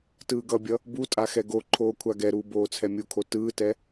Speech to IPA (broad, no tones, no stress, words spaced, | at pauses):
tɯːɡʌbʲʌ | butʼa xɛɡoǃʰoː kʷʰaɡɛɾuː boːt͡sʰɛmʲukʰo tɯːtɛ